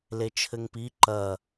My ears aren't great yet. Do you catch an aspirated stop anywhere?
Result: yes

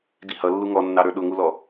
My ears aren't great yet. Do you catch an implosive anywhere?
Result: yes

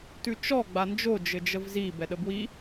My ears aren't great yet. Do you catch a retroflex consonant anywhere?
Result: no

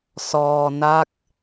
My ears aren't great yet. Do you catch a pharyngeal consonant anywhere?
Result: no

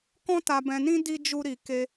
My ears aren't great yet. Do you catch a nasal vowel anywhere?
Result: yes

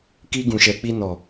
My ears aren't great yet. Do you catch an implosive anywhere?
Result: no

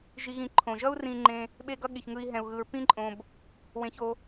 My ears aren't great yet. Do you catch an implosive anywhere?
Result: yes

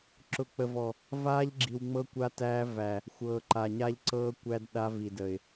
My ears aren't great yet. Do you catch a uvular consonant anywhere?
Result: no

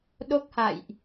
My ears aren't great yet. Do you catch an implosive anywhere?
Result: yes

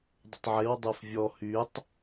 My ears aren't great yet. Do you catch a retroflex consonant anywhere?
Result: no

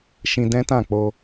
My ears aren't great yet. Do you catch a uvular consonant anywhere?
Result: no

